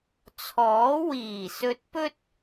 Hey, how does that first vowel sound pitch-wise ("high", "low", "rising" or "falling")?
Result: rising